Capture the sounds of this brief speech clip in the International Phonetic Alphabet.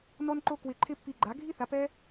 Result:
n ɔ˥ n ǃ o˥ k w ɪ˧ ǃʰ ɪ˥ pː i˧ ɡ͡ǃ a˩˥ ɡʱ i˥ θ a˩˥ p ɛ˥

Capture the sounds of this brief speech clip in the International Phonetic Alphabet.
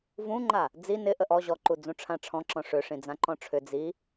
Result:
v ũ ŋ͡ǃ a | d͡z i n ɪ ʔ ə ʔ ɔ ʑ ɔ ǃ u d͡z ũ ʈ͡ʂʰ ã ʈ͡ʂʰ ɔ̃ ǁ ɔ̃ ʂ ʏ ʂ ĩ d͡z ã ǃ ɔ̃ ʈ͡ʂʰ ʏ d͡z i

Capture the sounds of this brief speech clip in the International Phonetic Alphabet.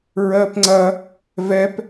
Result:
ɹ ɜ p ŋ͡ǀ ɐ | v ɛ p

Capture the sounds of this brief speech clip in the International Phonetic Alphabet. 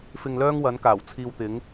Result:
f ɪ˧ ŋ l œː˥ ŋ w ɐ˨˥ n k aː˨˩ w t͡sʰ iː˧ w t̪ ɪ˨˥ ŋ

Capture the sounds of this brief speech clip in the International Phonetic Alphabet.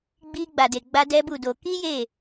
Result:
ɡ͡b i˧ ɡ͡b a˨ d e˨ ɡ͡b a˧ d ɛ˦ b u˦˨ d o˧ k i˦ j e˦˨

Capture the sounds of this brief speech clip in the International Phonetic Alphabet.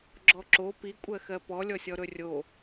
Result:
ɡ͡ǁ ɔ ǁ o p i kʷʼ ɜ x ɜ p ɔ lʲ ɔ sʲ ɔ ɾ ɵ rʲ o

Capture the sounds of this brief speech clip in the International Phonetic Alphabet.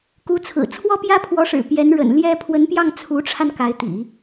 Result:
k u˧˥ t͡sʰ ɹ̩˨˩ t͡sʰ w ɔ˥ p j ä˥ pʰ w ɔ˧˥ ʂ ɻ̩˨˩ p j ɛ˧˥ n ɻ ə̰˨˩ n l j ɛ˥ pʰ w ə˧˥ n p j ɑ˥˩ ŋ t͡sʰ u˧˥ ʈ͡ʂʰ a˧ n k a˧˥ ɪ̯ t̪ ḭ˨˩˦

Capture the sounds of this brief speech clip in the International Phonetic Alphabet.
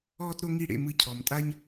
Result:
ɔː˥ t ɾ o˥ ŋ i˥˩ ɽ ḛ˥˩ m ɯ˧ cʰ ɔ˩ m tʼ a˥ ɲ

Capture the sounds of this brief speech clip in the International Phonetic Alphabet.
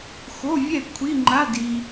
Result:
x o˧˥˧ vʲ ɛ˥˩ kʷʰ i˧˥˧ ŋ͡ǃ a˧˥˧ d i˨

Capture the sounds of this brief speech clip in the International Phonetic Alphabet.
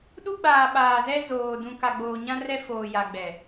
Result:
ɗ u˦ ɡ͡b aː˨ ɓ aː˨ z ɛ˦ z oː˨ d ũ˨ k a˨ ɡ͡b oː˨ ɲ ã˦ r ɛ˦ f oː˨ j a˨ ɡ͡b ɛ˨

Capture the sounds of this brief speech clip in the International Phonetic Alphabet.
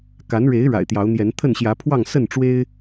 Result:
k a˨˦ n ɻ e˨˦ ɪ̯ ɻ a̰˨˩ ɪ̯ t̪ j ɑ˨˦ ʊ̯ n̪ j ɛ˨˦ n t̪ʰ ə˥˨ n ɕ j ä˨˦ pʰ w ɑ˥˨ ŋ s ə˥˨ n ʈ͡ʂ w e˦ ɪ̯

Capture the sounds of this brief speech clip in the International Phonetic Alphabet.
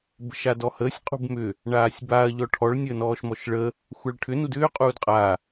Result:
b ə̤ ʃ a d ɔ h əː sʲ qʼ ṳ b m ʏ | ɳ aː sʲ b a ɐ̯ ʎ ɔ ʈʰ ɔ ɭ nʲ əː n ɔː ʃ m ɔ ʃ ɭ ə | xʷ a ɭ ʈʰ ʏ n u d ʏː qʼ uː d qʼ a

